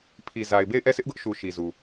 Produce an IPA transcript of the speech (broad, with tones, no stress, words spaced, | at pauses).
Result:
pʰi˨za˨ɪ̯be˦˨ɪ̯ ʔɛ˦˨sʰɪ˦ʔɡʊ˦ʔʃu˨ ʃi˨zu˨